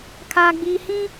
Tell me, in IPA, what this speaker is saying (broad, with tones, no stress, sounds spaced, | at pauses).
kʰ aː˦ ɡ͡b iː˦ h ĩ˦